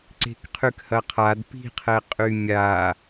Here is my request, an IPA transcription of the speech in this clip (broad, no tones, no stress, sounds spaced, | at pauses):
ǀ e̤ k qʰ y k h ɐ qʰ a d p i̤ qʰ ɛ qʼ y mʲ a